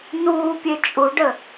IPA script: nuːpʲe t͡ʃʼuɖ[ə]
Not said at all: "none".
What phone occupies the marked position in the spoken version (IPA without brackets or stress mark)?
ə